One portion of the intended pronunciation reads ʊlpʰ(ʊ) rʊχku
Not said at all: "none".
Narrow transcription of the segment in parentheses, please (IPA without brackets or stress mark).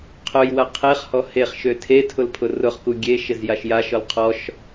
ʊ